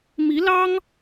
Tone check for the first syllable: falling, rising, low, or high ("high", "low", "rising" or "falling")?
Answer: rising